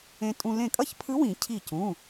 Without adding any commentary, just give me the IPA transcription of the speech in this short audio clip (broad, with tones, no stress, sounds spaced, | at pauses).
ẽ˧ tʼ ũ˧ l ẽ˧˩ kʼ ʌ˥˨ ç pʰ ɯ˧˥ w ĩ˨˩˦ cʰ i˧˩ c ũ˩˧˩